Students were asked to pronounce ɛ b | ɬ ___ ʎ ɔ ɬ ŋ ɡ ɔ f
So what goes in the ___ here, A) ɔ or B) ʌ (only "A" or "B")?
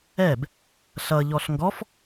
B